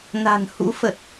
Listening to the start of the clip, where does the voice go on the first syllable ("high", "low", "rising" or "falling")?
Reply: low